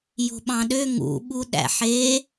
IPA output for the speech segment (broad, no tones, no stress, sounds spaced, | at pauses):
j o̤ ɓ ɑ̃ ɗ ø ŋ ṵ ɓ u ɗ æ̰ ħ e